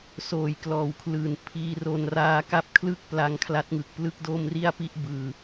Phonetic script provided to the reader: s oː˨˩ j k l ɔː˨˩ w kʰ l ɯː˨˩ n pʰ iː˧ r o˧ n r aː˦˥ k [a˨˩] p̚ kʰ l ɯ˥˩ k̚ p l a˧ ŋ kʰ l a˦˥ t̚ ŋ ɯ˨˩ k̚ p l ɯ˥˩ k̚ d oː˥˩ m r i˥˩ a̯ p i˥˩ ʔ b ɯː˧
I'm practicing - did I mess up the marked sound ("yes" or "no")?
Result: yes